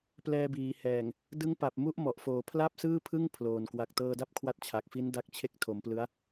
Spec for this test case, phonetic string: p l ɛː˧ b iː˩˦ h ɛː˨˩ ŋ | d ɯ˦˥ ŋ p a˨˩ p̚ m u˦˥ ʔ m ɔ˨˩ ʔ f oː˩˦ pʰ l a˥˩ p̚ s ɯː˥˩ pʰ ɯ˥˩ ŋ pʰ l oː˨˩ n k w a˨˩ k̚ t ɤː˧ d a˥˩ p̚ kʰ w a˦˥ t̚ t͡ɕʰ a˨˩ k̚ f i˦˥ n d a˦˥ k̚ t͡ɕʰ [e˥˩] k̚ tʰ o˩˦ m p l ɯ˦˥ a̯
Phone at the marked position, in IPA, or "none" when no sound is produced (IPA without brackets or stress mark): e˥˩